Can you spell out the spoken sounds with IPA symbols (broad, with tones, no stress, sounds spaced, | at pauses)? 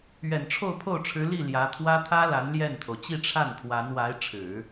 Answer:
ɥ ɛ˨˩ n ʈ͡ʂʰ o˥˧ ʊ̯ pʰ o˥˩ ʊ̯ ʈ͡ʂʰ ɻ̩˧˥ l i˥˩ l j ä˧˥ t̪ʰ w ä˥ t̪ʰ ä˥ l a˧˥ n l j ɛ˥˩ n t̪ʰ o˩ ʊ̯ t͡ɕ i˥˧ ʈ͡ʂʰ a˥˩ n pʰ w a˧˥ n w a˧˥ ɪ̯ ʈ͡ʂʰ ɻ̩˨˩˦